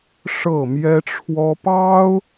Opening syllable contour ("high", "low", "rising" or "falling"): falling